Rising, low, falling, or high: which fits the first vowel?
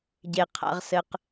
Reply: low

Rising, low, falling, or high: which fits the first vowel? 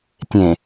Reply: low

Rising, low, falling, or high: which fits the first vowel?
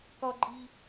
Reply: high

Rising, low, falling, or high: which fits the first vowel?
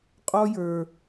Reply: high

